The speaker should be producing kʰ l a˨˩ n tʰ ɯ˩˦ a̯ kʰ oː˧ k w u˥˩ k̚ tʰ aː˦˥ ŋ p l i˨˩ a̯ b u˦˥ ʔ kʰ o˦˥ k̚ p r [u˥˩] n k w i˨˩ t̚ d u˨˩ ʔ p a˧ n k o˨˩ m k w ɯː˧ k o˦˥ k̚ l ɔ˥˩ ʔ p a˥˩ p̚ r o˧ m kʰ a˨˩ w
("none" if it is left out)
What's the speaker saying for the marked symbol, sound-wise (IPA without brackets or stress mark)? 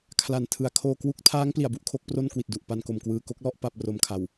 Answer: o˥˩